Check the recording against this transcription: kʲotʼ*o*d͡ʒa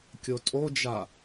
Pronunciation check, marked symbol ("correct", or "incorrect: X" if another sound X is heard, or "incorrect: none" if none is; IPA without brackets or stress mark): correct